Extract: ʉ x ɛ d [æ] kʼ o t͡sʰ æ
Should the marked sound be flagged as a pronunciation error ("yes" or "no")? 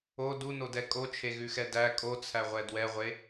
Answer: no